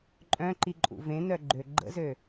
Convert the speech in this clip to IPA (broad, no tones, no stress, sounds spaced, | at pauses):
ǃʼ œ̃ ǃ i ǃʼ ṵ v ẽ n œ ɡ͡ǃ ø ɡ͡ǃ ə̰ z ø